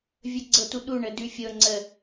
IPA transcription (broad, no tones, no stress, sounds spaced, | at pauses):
vʲ ə ɡ͡ǀ ɤ t u ɗ u ɳ ə d ʉ fʲ ɤ ŋ͡ǀ ə